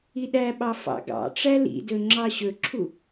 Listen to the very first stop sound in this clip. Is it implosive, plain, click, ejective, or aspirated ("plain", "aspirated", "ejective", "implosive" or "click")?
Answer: implosive